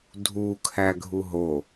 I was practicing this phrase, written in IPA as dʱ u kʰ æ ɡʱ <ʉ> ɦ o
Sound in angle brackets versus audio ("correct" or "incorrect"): incorrect